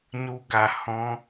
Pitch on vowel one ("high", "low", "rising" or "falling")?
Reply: high